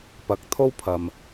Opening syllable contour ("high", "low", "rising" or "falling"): rising